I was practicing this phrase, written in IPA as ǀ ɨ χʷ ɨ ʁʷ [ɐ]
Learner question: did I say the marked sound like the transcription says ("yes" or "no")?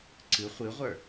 no